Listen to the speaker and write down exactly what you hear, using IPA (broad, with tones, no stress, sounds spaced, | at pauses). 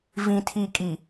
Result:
v ĩ˨ tʰ i˨ kʼ i˨